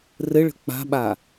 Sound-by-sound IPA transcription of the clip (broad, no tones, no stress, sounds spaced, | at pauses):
r ɘ ɭ ə̤ k͡p a̤ ɓ a